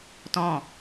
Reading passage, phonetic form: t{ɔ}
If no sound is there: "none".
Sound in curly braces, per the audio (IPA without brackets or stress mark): ɔ̃